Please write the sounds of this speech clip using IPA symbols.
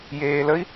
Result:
j eː l ə i̯

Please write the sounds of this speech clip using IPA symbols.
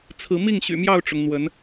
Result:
t͡sʰ ɹ̩˨˦ m i˥˨ ŋ ɕ y̰˨˩ m j ɑ˥˨ ʊ̯ ʈ͡ʂ ʊ˩ ŋ n̪ w ə˨˦ n

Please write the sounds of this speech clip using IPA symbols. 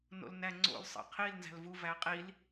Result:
n o̰ l n æ ŋ͡ǀ o̰ l sˤ ḛ qʰ i l n z æ̤ l v u v æ qʼ i l

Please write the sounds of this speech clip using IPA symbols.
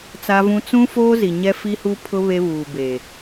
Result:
t͡s a˦ v ũ˦ t͡s ũ˦ f oː˦ z i˨ ɲ ɛ˦ f i˦ h u˦ pʰ ʊ˦ β e˦ β uː˨ b e˨

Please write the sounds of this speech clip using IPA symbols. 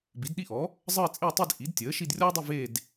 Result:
b i˩˥ d ɗ i˥˧ ʔ ɔ˩˥ | zˤ əː˥˧ t͡sʼ ɪ˥˧ u̯ tˤ i˥˧ d ʔ i˩˥ d tʲ əː˩˥ ʃ i˥˧ d rʲ ɔ˥ dˤ i˥˧ v eː˥˧ d

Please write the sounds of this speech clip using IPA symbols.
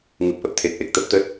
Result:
ŋ ɨ˨˩ p̚ ʔ ə˨˩ p̚ t̪ʰ e˨˩ t̚ ʔ e˨˩ k̚ t̪ ə˦˥ p̚ t̪ ə˦˥ t̚

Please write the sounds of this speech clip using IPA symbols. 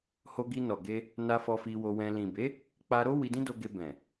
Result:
h o˧ ɡ i˧ n ɔ˨ ɡ e˧ | n a˧ f ɔ˧ f i˧ w o˧ w ɛ̃˧ l ĩ˨ b e˨˦ | k͡p a˧ ɾ o˦ w i˧ d ĩ˦ d o˧ ɡ e˧ b ɛ̃˨

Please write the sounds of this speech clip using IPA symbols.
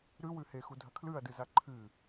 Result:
ɾ ʉ w ʉ h e x u dʱ ɐ kʰ l ʉ ɐ̯ d ɨ z a ǃʰ ɨ

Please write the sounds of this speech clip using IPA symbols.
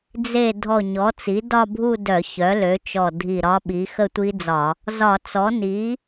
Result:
d͡z e˧˩ dʱ ɔ˧˩ ɲ ɔ˩˥ t͡s i˩˥ d ɒ˥˧ bʱ u˥˧ d œ˧˩˧ ç œ˩˥ l ø˩˥ t͡ʃ ɔ˧˩ dʱ i˧˩ ɾ ɒ˦˥ ɓ i˩˥ x ə˥˧ tʷ i˦˥ d͡z ɒ˧˩˧ | z ɒ˧˩˧ t͡s ɔ˩˥ n i˩˥

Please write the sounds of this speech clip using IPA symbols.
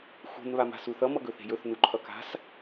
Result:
x ṳ n β a m a̤ s u θ ʌ m ʌ ɡ ɵ θ e̤ j ɵ θ n u ǃʰ ʌ k a̤ s

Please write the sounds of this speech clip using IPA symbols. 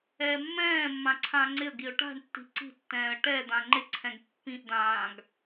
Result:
ɛː mː ɛ̃ː mː ã ǀʰ ãː ŋ͡ǀ ɪ ə̯ ɡ i ʊ̯ ʈ a̤ ɳ tː i̤ ǀ i̤ tː ɛ̃ː ə̯ ʈ ɛ d̪ ã ŋ͡ǃ ɪ ǀʰ ɛ̃ ɡ pː ĩ ʔ d̪ ãː ɡ

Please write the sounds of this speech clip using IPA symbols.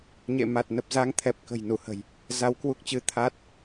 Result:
ɲ ḛ˧˨ m a˨˩ t̚ n ə˨˩ p̚ z a˧ ŋ t̪ʰ ɛ˨˩ p̚ k ə̤˨˩ j n u˧˩ h ə̤˨˩ j | z a˧ w k w u˦˥ k̚ t͡ɕ ɨ˧ t̪ʰ a˦˥ t̚

